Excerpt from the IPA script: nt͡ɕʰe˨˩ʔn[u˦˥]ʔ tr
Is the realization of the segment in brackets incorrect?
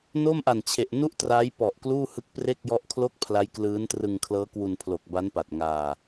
yes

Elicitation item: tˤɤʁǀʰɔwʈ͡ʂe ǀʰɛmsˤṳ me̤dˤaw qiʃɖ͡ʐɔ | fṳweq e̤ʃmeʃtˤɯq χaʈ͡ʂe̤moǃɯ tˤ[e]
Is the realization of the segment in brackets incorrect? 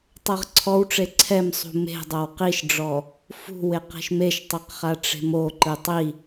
yes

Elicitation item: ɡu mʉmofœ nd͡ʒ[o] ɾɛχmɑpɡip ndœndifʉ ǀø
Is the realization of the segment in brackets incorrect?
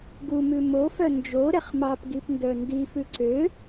no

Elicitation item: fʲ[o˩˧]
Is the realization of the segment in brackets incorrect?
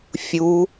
yes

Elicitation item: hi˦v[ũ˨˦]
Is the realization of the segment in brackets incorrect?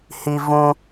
yes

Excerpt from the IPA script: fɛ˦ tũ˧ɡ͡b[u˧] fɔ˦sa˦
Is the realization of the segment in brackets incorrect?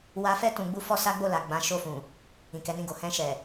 yes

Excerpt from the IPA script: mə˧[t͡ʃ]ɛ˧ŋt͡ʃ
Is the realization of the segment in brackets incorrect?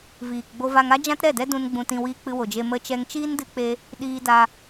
no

